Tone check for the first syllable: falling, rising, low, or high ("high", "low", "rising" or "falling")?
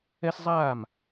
high